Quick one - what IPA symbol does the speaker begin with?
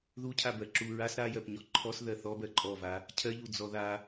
ð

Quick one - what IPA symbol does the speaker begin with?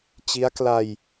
t͡ɕ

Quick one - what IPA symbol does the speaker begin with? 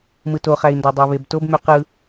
m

